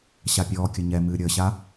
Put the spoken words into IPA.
ɕapʲɔːkʲə ɲɛ mɨːɾʲəːɕa

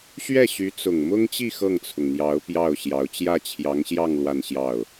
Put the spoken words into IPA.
ɕɥɛ˥˩ɕy˧˥t͡sʊ˨˩ŋ mʊ˥ŋt͡ɕi˥˧ xɤ˥˩ŋt͡sʰʊ˩ŋn̪jɑ˧˥ʊ̯ pjɑ˥˩ʊ̯ɕjɑ˧˥ʊ̯ t͡ɕjä˥˩t͡ɕʰjɑ˧˥ŋɕjɑ˥˧ŋ lwa˥˧nɕjɑ˥˩ʊ̯

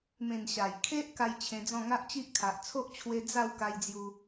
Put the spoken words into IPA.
mẽ˨˩n ɕa˨˩j kʰe˦ʔ ka˦jt͡ɕʰẽ˧d͡zɔ̃˥˧ ŋa˦ʔt͡ɕi˦ʔ kʰa˨ʔ t͡sʰo˦ʔt͡ɕʰwe˧ d͡za˥˧wka˧jd͡zju˧

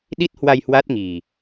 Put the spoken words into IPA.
ɗi˦˥t̚hwa˧j hwa˦˥t̚ŋi˨˩

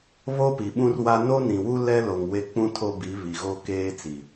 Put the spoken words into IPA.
βo˦pi˨ɓũ˦rwa˦ no˦nĩ˨wu˦ lɛ˦lo˨ŋ we˦k͡pũ˦tʰo˦ bi˨˦βi˨ɣo˦ keː˦t͡si˨

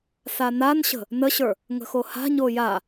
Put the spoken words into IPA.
sananɕə̤ | nəɕə˞ | ŋə̤xoha̤ɲo ja

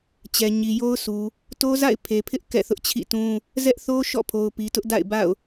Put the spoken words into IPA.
t͡ɕɛ˨ɲi˨jo˦ʊ̯sʰu˨ | to˦za̰˦˨ɪ̯ pʰe˨pʰɪ˦ʔ kɛ̰˦˨θʊ˦ʔt͡ɕʰḭ˦˨tũ˦ | zɛ˦ʔθo˦ ʃɔ̰˦˨pʰo˨ʊ̯pi˨ tʊ˦ʔda̰˦˨ɪ̯ba̰˦˨ʊ̯

